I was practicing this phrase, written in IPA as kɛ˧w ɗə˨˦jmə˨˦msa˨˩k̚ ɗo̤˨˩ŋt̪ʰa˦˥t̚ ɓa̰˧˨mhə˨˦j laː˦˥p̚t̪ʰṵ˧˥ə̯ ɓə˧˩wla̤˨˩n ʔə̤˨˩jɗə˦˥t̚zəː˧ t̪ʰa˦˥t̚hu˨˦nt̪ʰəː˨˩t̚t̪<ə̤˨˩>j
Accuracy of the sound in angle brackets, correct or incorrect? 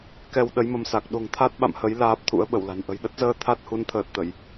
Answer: incorrect